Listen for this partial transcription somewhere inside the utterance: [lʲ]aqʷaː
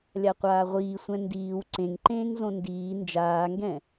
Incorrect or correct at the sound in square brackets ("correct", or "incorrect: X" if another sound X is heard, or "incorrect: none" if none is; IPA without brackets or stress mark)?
correct